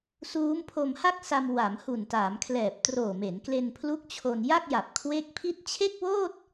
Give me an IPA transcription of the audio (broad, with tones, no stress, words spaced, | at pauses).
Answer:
suː˦˥mpʰo˧mha˥˩k̚sa˧m wa˩˦mhu˨˩ntaː˩˦mkʰlɛː˨˩p̚ troː˨˩me˩˦nkle˧npʰlu˦˥k̚ t͡ɕʰo˧n ja˥˩k̚ja˨˩p̚kʰwe˦˥k̚pʰi˥˩t̚ t͡ɕʰe˥˩k̚woː˥˩t̚